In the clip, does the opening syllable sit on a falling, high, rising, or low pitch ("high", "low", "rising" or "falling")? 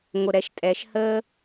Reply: low